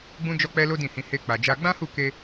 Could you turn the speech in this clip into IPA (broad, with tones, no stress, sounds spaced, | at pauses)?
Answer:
ɡ͡b ũ˦ d͡ʒ ɔ˦ k͡p ɛ˦ l o˦ d ĩ˦˨ h ĩ˧ h e˦ k͡p a˧ d͡ʒ a˦ ɡ͡b ã˦ h u˦˨ k e˧